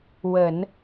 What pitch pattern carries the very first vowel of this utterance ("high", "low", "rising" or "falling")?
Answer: low